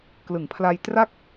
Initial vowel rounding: unrounded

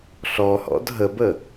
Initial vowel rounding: rounded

